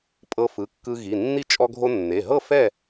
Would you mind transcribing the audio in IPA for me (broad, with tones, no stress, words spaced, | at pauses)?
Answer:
pʼɤ˧fɯ˩˧˩kːɯ˧ ɣi˩˧˩nːi˥˨ t͡ʃʼɔ˧ɡʱo˧nːe˩˧˩ɦɤ˥˨ fɛ˥˨